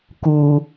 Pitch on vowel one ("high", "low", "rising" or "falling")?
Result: low